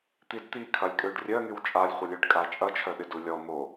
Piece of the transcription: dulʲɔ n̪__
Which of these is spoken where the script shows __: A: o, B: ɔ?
A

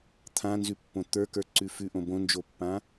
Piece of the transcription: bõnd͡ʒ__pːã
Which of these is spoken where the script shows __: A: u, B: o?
B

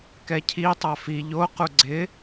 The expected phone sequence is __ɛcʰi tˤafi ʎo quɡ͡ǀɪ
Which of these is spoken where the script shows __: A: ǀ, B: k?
B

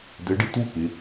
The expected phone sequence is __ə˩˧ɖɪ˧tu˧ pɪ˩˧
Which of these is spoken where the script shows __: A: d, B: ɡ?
A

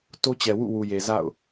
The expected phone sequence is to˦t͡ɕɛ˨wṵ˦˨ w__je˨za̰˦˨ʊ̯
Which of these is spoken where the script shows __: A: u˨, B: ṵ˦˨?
A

